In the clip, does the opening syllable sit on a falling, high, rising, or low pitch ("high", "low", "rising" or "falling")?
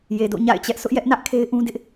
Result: low